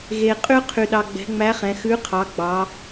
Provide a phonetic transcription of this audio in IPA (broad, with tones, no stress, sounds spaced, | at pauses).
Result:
ɣ e˧ qʼ y˥ qʰ y˧ ɗ ɑ˧ ɡ͡b ɛ̤˧˥ ŋ͡m æ˧˥ χ ɛ̃˩˧ x ʉ˧˥ qʰ ɑ˩˧ ɡ͡b ɑ˩˧